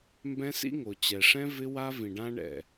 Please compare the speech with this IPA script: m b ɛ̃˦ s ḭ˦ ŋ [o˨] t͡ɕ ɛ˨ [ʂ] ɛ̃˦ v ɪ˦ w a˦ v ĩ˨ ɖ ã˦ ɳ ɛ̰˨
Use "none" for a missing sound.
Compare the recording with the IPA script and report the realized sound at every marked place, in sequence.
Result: o˨, ʂ

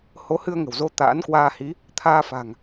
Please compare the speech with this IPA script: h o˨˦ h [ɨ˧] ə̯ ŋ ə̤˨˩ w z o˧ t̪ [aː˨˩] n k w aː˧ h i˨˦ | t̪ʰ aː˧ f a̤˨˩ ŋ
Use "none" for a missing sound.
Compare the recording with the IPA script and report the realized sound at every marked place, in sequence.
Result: ɨ˧, a̰ː˧˥

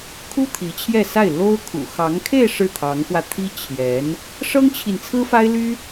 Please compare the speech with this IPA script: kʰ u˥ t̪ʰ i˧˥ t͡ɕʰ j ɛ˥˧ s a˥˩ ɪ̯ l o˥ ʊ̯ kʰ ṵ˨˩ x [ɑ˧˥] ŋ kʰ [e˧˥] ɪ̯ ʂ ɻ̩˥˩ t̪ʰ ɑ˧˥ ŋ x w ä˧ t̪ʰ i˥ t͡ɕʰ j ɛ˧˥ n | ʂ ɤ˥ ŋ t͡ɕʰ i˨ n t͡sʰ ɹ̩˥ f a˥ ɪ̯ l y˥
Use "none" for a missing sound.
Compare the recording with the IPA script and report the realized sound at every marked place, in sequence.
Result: ɑ˧˥, e˥˧

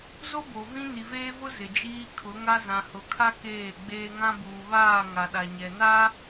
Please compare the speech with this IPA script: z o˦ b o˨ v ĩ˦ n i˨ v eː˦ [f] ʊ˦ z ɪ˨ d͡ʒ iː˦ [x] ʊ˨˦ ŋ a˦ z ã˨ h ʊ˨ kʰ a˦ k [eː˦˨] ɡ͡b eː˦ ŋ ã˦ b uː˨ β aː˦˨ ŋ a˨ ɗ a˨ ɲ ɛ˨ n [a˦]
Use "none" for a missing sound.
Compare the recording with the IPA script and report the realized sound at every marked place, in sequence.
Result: v, kʰ, eː˦˨, a˦

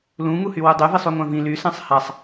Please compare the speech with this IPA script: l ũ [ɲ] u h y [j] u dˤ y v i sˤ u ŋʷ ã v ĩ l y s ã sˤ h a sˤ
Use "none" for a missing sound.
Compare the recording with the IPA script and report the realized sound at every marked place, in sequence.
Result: ŋ, w

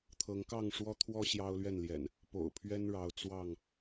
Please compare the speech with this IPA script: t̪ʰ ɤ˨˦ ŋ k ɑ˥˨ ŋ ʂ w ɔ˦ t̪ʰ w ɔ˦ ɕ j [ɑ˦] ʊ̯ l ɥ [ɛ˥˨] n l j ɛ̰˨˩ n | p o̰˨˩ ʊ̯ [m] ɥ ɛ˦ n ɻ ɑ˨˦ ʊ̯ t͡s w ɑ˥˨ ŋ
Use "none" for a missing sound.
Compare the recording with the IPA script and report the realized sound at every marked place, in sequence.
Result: ɑ˦, ɛ˥˨, pʰ

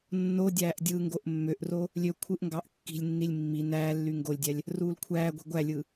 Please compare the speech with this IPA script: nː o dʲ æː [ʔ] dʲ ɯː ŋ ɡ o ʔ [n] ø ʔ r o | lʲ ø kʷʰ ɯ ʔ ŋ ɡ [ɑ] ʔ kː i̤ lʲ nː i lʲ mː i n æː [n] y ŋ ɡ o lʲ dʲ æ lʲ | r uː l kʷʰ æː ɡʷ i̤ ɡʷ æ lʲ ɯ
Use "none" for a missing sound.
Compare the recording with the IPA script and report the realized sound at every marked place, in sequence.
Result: ʔ, mː, ɑ, lː

